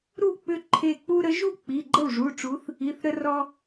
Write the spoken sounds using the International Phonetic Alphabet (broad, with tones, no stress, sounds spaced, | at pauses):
ɾ u˥˩ k͡p ʏ˦ ǃʰ e˧˩ k͡p u˦ ɾ ə˨˥ ʒ u˥˩ k͡p i˩˧˩ ɡ͡ǃ ə˥˩ w ʐ u˩˧˩ ʈ͡ʂ u˨˥ θ | i˩˧˩ θ ɾ ə˦ r ɔ˦